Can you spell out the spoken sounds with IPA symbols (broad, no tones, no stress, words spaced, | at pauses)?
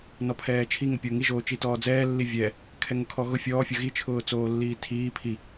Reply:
nɔpʰɛːt͡ʃʰi ŋʊpʲoŋi ʒoːt͡ʃitɔːd͡zɛː lːivʲɛ | kʰɛŋʊkʰɔɣʊ fʲɔː fʲʊɣi t͡ʃʰʊːt͡soːlːiːtʰiː pʰi